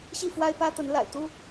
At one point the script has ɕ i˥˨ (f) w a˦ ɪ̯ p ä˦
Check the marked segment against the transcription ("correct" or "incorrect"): correct